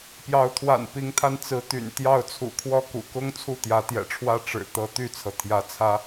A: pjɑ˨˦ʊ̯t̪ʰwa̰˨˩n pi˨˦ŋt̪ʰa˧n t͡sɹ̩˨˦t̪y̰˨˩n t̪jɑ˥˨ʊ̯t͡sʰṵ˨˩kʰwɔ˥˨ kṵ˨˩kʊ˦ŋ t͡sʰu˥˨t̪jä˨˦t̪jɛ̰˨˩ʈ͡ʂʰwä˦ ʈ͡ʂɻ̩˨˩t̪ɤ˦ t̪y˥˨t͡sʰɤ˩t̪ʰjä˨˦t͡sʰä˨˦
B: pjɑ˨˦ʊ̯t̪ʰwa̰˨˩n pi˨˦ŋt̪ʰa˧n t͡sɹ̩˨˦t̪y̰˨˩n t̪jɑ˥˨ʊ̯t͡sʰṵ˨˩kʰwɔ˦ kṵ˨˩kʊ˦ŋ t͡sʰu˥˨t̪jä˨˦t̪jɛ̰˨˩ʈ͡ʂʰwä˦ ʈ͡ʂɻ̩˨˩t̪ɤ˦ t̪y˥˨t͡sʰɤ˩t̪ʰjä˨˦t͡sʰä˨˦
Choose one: A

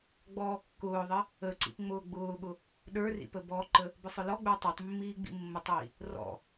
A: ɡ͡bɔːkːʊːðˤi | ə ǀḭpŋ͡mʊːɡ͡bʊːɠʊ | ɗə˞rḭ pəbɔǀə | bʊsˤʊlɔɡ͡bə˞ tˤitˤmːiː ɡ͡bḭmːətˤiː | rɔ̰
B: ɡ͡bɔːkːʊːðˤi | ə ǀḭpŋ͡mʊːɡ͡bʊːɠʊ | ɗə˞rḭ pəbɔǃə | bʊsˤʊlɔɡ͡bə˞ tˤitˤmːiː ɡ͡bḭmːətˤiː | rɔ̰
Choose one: B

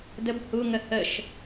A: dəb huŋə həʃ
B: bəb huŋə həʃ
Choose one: A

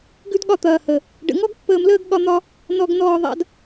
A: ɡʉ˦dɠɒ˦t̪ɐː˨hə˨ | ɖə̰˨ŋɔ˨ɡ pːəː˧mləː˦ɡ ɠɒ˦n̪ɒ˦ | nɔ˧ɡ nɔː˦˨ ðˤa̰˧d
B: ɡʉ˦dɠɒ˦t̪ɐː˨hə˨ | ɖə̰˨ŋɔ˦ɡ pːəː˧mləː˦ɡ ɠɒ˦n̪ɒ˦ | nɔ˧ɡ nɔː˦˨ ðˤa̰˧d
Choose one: B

